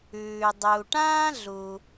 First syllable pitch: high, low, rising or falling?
low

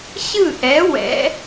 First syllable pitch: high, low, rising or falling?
falling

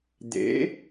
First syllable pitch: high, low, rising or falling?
rising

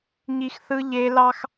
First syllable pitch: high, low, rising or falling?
high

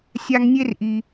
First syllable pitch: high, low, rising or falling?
low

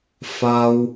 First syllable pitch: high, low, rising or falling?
high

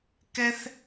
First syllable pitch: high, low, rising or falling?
high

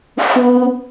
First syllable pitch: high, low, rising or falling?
high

